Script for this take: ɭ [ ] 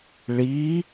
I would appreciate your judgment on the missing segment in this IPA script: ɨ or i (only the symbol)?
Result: i